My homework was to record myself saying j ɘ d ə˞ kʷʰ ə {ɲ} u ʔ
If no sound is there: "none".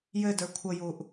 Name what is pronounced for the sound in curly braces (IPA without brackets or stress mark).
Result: j